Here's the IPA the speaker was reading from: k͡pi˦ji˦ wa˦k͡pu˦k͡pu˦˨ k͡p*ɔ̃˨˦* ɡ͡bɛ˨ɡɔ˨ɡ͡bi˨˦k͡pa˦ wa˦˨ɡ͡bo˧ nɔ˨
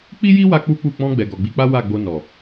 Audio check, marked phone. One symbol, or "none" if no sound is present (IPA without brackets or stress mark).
ɔ̃˧